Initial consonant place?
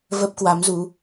labial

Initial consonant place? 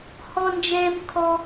glottal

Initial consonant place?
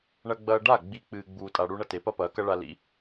retroflex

